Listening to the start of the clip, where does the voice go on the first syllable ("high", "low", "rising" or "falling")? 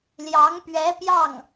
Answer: rising